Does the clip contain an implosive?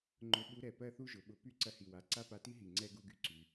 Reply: yes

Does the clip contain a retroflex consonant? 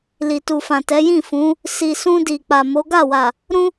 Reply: no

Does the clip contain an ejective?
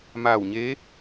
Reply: no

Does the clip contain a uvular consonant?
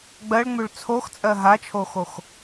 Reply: no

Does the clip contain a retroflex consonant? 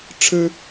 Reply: yes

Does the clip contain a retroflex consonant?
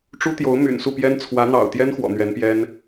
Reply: yes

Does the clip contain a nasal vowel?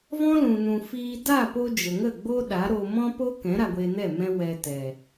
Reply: yes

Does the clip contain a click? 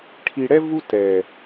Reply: no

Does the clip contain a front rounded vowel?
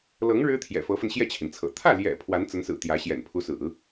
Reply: no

